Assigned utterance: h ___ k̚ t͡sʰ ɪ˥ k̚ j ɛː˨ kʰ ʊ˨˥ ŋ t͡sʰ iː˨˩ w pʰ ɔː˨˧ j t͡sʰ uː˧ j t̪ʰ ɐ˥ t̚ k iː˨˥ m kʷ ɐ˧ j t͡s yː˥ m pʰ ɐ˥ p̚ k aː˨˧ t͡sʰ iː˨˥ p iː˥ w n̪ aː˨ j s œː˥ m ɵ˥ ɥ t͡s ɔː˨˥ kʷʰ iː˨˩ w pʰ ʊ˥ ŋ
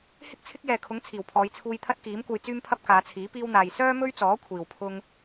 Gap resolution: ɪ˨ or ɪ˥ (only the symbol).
ɪ˥